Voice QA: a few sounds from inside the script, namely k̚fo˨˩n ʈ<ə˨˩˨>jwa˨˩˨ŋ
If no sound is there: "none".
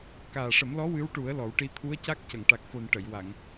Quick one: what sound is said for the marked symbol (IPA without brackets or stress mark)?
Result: ə˨˩˨